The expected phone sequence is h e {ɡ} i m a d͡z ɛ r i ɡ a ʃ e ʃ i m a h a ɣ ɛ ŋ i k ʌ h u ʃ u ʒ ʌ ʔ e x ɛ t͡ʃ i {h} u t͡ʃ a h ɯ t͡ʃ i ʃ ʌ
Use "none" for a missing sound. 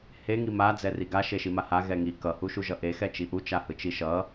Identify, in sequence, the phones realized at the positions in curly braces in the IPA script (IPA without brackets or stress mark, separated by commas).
ŋ, ʔ